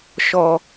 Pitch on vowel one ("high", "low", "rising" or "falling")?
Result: low